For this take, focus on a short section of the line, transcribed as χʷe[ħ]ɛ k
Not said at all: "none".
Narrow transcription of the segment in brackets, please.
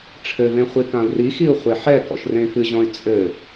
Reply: ħ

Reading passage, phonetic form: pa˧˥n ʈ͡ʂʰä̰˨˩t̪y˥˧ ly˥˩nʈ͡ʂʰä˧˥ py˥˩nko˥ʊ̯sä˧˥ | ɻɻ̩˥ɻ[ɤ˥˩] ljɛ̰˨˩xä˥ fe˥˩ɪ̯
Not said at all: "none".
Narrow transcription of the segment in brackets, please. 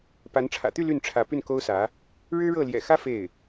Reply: ɤ˥˩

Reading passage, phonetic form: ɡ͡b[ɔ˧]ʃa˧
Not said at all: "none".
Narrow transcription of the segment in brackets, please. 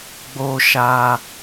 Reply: o˧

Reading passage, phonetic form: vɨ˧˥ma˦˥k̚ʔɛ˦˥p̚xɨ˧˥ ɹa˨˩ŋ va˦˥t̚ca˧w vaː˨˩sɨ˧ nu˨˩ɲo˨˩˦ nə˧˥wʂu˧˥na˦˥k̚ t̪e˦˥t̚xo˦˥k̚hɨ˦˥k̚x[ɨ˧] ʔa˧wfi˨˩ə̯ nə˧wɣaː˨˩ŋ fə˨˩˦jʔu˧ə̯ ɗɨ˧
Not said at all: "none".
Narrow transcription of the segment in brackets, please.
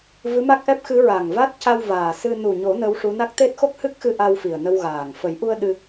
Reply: ɨ˧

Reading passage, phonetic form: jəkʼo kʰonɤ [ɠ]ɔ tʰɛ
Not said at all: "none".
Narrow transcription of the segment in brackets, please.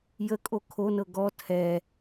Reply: ɡ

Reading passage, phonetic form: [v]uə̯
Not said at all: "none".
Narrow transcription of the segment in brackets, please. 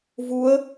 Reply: v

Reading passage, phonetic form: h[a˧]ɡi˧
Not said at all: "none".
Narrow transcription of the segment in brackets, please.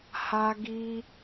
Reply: a˧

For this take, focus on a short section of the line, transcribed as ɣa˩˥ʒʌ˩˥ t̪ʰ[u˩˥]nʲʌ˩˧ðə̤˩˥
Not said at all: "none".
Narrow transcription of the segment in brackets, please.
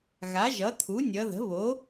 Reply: u˩˥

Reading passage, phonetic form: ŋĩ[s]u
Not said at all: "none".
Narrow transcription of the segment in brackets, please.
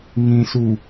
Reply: s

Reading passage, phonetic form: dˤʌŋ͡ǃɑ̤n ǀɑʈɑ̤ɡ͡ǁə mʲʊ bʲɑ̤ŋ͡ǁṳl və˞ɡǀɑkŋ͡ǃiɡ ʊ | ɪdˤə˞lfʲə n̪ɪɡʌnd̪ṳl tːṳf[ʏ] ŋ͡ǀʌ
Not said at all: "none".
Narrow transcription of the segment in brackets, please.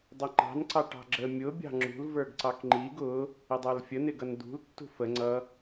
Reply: ə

